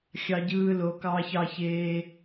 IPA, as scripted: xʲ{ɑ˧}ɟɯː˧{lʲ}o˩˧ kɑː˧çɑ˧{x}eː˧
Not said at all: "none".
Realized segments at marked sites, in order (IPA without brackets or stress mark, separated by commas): ɑ˧, l, ç